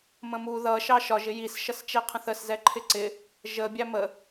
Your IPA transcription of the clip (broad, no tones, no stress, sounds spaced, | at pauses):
m ə̃ m u ð ʌ ʃ ɑ ʃ ɒ ʒ ɪ j i s ʃ ʌ s t͡ʃ ɛ qʰ ə̃ θ ə s z ɛ ǃʰ ɪ ǀ ɪ | ʒ ə bʲ æ m ə